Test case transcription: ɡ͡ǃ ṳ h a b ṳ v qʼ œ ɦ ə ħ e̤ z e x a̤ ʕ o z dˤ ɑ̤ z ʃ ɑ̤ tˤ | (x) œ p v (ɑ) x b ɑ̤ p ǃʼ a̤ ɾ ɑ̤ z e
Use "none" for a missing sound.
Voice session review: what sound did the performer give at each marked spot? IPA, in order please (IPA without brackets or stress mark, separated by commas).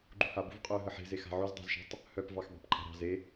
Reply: h, ɑ